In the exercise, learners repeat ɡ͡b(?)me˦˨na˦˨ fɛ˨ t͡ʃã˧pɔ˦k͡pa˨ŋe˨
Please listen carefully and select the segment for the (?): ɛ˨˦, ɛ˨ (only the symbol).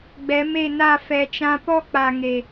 ɛ˨˦